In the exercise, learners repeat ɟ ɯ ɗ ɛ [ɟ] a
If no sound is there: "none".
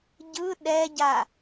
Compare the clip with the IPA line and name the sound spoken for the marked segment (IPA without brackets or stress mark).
ɟ